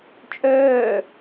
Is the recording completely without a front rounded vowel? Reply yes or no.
no